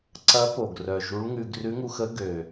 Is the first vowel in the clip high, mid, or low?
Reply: low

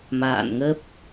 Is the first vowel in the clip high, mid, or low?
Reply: low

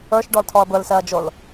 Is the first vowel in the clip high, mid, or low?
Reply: mid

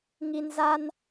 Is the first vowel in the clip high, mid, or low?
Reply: high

